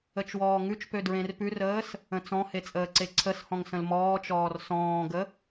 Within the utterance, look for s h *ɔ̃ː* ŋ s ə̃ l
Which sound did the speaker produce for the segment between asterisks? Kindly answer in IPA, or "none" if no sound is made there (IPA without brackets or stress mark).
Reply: ɔ̃